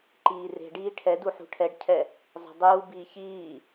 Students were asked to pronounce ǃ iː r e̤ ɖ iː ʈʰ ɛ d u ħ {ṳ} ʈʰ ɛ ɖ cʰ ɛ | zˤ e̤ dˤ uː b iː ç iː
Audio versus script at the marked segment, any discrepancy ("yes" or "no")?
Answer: no